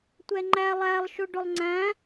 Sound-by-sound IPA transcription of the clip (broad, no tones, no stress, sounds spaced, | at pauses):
tʷ ɛ ŋ͡ǃ æ lˠ æ lˠ ʃ ʊ ɖ ʊ lˠ ŋ͡ǀ æ̃